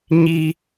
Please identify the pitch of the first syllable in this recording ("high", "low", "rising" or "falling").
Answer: high